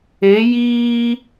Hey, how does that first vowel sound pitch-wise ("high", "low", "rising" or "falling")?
rising